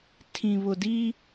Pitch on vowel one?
low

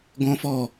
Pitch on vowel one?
high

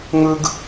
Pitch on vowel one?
high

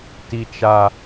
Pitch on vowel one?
high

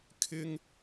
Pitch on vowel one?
high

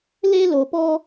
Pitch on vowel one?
high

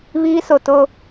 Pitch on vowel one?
high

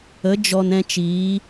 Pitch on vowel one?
rising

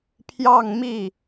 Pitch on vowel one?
falling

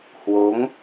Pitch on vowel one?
rising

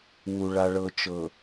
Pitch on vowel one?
low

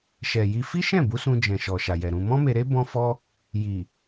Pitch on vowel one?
low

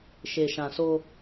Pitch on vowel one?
low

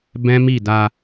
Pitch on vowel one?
high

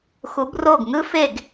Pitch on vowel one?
rising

